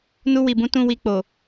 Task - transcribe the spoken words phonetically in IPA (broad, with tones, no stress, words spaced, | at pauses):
nu˧ wi˨bũ˨˦ tũ˦wi˧ k͡po˨